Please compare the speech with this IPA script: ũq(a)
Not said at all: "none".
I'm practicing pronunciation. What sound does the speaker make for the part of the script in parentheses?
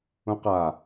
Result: a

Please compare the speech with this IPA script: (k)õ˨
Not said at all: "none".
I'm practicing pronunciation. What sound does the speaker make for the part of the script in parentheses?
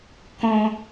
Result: k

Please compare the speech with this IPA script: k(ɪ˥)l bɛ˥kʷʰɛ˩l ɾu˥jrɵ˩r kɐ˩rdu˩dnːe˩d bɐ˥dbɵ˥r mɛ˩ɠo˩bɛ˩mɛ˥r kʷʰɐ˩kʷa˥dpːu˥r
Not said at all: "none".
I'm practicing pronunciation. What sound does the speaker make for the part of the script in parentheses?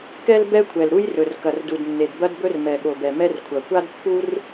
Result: ɛ˥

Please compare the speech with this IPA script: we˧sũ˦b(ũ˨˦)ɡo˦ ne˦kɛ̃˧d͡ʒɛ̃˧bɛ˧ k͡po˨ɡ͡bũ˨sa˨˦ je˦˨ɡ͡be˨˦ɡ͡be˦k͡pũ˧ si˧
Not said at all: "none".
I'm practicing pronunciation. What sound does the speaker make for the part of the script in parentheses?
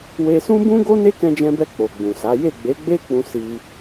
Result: ũ˦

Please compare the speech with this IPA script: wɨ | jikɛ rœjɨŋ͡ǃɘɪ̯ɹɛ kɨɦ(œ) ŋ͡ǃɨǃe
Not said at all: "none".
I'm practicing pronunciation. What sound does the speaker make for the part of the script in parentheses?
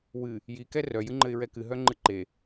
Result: œ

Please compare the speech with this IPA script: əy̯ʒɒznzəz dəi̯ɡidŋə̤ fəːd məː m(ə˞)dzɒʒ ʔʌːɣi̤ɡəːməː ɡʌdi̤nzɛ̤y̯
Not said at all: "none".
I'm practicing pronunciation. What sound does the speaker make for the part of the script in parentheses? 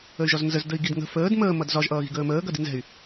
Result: ʌ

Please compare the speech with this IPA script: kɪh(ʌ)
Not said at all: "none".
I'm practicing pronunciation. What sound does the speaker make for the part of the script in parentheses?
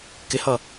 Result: ʌ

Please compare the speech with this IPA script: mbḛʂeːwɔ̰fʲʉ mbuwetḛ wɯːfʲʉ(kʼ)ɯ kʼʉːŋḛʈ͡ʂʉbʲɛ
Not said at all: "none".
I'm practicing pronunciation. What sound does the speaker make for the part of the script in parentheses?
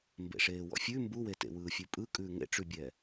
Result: pʼ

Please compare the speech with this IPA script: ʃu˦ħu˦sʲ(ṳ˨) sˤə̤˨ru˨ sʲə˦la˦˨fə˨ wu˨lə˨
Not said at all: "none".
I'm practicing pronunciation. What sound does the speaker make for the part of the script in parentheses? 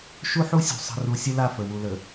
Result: ṳ˨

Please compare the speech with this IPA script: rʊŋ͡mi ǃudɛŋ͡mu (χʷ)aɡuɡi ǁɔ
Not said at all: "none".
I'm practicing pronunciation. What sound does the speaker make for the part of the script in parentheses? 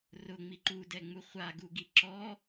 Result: χʷ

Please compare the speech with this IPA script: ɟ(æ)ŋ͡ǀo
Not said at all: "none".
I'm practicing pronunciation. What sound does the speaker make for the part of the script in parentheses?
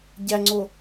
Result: æ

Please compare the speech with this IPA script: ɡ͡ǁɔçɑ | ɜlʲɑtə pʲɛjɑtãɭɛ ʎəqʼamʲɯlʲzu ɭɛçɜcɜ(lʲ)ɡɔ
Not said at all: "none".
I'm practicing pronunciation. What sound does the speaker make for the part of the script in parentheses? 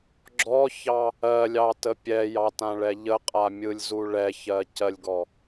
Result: lʲ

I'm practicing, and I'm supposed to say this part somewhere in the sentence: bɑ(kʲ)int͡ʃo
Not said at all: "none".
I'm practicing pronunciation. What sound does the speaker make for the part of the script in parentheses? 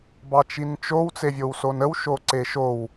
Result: t͡ʃ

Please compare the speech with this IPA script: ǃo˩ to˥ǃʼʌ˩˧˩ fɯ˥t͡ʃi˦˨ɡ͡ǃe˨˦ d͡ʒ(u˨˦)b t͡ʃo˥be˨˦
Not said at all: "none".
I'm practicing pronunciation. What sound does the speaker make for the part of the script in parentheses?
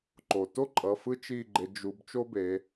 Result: u˨˦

